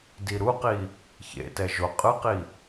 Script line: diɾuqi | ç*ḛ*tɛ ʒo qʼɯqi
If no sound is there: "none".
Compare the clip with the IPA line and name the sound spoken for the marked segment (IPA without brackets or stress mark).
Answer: ḛ